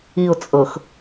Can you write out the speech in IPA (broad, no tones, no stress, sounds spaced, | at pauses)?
i ʊ̯ t͡sʼ ɤ x